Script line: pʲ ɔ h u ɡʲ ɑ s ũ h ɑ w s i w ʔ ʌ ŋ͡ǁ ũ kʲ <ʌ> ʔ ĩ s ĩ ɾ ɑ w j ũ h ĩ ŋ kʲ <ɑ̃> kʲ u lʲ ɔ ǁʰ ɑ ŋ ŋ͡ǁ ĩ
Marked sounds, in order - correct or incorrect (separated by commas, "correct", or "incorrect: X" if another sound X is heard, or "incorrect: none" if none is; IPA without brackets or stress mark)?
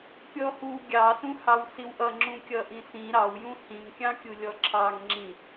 correct, correct